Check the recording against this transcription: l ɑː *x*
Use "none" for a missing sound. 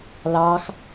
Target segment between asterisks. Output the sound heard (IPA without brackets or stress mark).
x